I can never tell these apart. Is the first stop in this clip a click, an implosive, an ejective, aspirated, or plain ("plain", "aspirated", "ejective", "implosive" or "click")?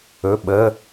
implosive